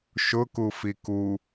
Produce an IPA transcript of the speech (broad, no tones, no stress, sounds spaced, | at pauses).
ʃ ʊ k u f i k u